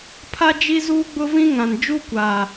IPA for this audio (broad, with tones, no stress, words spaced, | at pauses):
pʰa˦ d͡ʒi˦zuː˦ɡ͡bʊ˦vĩ˦ ŋã˨n d͡ʒu˦kʷaː˨